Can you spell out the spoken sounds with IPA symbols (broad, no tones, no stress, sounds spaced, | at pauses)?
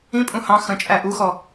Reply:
ĩ pʼ ũ h ɑ̃ x ə̃ t͡ʃʼ æ ʔ u x ɔ